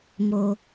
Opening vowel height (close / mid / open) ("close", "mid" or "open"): mid